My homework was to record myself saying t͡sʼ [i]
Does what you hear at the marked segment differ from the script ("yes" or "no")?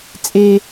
yes